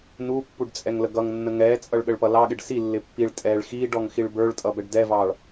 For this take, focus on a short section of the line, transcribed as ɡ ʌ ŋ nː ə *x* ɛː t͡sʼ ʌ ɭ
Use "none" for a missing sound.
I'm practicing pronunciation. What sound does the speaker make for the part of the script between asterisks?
ŋ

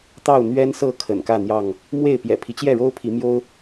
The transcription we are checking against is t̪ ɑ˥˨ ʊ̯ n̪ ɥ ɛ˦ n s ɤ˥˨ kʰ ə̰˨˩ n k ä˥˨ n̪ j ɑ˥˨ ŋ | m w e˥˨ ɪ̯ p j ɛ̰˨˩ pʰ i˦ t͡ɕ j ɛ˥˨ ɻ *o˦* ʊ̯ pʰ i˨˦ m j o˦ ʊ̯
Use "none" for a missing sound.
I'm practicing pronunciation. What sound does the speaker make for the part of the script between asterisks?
o˦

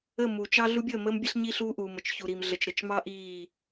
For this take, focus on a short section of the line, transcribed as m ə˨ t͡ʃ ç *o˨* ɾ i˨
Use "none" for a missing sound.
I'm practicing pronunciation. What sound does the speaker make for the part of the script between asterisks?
u˨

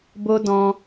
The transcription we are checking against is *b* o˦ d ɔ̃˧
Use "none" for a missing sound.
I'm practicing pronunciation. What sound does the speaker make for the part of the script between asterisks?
b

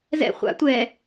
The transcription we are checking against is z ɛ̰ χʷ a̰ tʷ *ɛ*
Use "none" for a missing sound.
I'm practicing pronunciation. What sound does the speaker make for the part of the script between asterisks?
ɛ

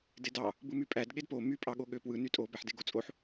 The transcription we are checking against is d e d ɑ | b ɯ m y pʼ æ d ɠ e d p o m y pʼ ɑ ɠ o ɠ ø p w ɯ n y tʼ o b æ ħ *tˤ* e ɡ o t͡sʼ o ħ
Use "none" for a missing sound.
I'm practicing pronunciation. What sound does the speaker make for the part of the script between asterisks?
d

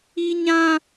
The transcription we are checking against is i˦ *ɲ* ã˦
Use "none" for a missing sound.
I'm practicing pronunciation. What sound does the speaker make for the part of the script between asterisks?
ɲ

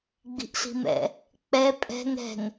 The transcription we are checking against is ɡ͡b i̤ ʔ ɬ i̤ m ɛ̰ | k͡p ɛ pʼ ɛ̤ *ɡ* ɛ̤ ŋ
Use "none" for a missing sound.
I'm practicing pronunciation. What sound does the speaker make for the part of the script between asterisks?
ŋ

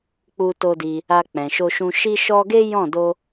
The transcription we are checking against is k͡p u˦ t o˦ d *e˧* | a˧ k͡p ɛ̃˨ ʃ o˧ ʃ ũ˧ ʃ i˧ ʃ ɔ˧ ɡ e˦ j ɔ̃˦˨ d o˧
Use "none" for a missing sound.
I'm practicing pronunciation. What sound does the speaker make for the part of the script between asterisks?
i˧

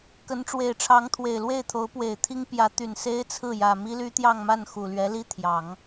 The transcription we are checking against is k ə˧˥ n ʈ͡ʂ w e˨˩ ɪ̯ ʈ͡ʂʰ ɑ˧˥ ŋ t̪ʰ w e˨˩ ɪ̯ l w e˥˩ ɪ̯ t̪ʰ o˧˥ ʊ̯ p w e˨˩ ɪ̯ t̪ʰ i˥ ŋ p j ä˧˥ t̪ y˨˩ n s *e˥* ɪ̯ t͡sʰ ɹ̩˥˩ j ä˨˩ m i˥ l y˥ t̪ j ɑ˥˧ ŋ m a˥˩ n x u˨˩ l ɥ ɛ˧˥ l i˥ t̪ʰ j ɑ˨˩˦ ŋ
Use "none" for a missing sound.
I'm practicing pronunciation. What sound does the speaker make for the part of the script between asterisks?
e˥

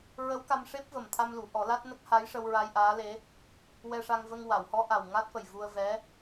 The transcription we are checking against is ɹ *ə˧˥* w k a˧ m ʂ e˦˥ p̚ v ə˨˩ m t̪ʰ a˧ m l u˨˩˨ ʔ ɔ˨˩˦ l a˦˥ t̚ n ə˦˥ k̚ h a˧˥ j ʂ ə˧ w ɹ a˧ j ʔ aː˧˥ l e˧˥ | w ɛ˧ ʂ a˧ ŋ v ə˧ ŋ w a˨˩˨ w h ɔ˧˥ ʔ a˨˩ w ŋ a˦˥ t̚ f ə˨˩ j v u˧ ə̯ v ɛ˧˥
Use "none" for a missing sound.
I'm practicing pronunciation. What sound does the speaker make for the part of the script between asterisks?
ə˧˥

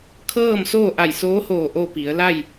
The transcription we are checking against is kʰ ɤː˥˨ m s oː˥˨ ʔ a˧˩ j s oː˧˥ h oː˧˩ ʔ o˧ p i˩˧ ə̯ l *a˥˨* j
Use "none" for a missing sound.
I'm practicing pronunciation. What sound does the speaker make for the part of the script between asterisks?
a˥˨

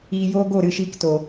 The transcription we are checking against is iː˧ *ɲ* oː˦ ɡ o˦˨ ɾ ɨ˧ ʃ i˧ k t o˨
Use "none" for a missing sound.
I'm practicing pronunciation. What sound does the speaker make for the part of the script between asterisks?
j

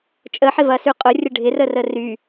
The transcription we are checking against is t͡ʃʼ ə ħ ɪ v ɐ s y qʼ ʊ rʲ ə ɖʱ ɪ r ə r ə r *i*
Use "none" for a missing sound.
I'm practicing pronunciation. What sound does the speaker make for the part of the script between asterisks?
y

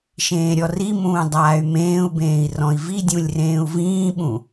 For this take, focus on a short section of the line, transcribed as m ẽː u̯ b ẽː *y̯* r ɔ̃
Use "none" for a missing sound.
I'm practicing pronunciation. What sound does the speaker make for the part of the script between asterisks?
i̯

